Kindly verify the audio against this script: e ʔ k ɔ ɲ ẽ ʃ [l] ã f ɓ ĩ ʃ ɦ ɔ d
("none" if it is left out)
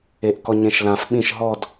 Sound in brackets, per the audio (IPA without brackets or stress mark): l